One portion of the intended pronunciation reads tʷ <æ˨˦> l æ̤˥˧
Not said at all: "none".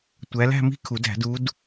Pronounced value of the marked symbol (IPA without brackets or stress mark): æ˨˦